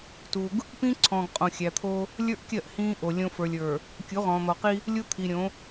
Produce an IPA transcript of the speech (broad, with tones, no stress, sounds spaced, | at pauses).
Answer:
t u˨ ɡ | p ĩː˦ ǀʰ ɔ̃ː˨ ɡ qʼ õ˨ xʲ æ˨ t̪ʰ o˦ | lʲ ə˞˦ ʔ kʲ ɜ˦˨ ʔ h ĩː˦ ʔ o˨ lʲ õ˦ f ə˞˨ lʲ ə˞˨ | kʲ u˨˦ ʁ ɔ̃ː˨ n̪ ɔ˨ q i˦ | lʲ u˦ t̪ʰ i˨ ɾʲ õ˨˦